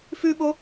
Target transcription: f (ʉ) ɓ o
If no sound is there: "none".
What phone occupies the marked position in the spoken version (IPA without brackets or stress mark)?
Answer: ʉ